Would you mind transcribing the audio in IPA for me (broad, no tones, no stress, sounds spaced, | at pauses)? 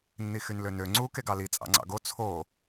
nː i x y n l ø n ø ŋ͡ǀ u k e ɡ ɑ l i t͡sʼ ɑ̰ ŋ͡ǀ ɑ̰ ɡ o t͡sʰ o